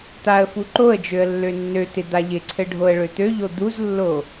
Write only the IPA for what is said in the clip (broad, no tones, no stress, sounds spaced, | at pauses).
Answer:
t̪ a ə̯ f u ǃ o ə̯ d͡ʒ ø ə̯ lː ø nː ø t̪ ɪ d̪ a ʎ ɪ ǀʰ ɘ ɖʱ o ə̯ ɭ ø t̪ ø ʎ o d̪ u z lː o